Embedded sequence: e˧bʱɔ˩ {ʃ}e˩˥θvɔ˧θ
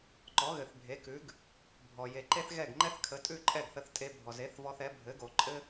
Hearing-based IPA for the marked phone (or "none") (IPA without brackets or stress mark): z